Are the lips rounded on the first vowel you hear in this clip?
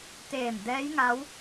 no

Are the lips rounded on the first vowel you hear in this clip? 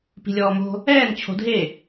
no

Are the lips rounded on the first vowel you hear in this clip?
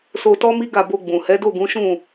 yes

